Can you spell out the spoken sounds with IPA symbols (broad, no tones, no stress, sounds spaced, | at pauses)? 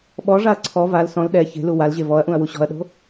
ɓ ɔ ʐ a ɐ̯ ǀʰ ɔ v a l s ɔ̃ l ɗ ɛ ç e̤ l u w a l ʑ e v ɔ ɐ̯ ʔ ũ ɐ̯ w u ɕ ɔ̤ ɐ̯ ɗ o̤